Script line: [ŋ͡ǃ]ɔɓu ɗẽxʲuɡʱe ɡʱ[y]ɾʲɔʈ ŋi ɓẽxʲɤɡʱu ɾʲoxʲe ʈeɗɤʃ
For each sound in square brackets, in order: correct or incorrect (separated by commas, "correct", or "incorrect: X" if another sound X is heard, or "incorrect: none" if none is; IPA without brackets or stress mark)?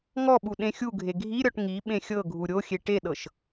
incorrect: ŋ, incorrect: i